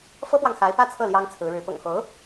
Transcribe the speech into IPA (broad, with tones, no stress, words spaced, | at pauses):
fɤ˥pwɑ˨ŋxa˧˥ɪ̯ pä˥˧t͡sʰɤ˥˩ ljɑ˥ŋt͡sʰɹ̩˧˥ɻɻ̩˧˥ pʊ̰˨˩ŋxo˧˥ʊ̯